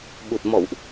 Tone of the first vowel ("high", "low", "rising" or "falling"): low